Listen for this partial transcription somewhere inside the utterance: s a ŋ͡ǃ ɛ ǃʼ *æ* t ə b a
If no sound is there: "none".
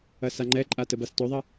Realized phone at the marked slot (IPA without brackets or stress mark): a